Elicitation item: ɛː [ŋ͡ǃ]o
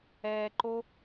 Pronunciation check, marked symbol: incorrect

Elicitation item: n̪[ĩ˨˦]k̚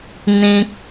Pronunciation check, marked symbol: incorrect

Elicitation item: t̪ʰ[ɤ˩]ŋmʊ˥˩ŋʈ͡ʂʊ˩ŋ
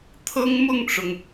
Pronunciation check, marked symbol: incorrect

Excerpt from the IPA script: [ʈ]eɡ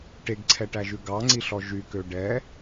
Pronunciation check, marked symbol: correct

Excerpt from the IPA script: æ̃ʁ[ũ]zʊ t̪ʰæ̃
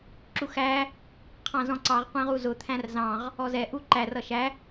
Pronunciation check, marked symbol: incorrect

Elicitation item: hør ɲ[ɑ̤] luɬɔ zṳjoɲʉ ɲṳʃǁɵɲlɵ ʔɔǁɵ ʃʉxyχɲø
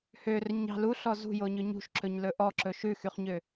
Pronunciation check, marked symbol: correct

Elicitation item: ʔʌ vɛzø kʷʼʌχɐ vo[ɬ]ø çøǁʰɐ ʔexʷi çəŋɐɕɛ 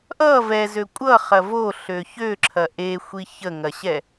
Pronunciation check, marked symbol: correct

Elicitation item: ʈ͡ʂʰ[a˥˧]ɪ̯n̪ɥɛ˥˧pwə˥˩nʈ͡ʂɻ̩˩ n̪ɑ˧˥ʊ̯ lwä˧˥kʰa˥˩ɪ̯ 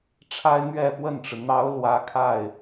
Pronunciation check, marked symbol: incorrect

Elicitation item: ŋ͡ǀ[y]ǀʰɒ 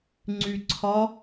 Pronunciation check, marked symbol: correct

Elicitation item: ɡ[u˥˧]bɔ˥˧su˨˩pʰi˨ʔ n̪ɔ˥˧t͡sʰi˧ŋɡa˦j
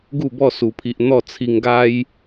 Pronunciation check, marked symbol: correct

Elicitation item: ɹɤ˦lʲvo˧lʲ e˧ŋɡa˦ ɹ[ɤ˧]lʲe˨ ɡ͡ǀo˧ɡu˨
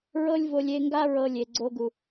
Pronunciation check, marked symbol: correct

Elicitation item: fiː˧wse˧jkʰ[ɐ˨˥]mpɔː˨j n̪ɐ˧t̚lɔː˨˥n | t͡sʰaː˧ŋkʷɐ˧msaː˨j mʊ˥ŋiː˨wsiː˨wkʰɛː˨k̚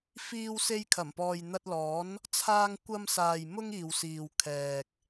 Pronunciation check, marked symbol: incorrect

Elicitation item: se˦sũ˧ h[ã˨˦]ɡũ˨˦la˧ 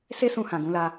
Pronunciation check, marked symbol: incorrect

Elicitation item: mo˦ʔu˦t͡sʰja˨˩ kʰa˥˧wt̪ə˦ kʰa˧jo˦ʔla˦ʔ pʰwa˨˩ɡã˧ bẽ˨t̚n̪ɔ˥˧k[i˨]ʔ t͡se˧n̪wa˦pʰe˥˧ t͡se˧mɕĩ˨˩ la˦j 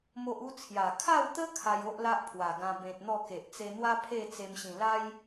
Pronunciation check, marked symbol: incorrect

